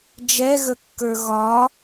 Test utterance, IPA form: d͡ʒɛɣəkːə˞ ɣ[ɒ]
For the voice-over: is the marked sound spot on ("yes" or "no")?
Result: yes